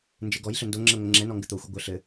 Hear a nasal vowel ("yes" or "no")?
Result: no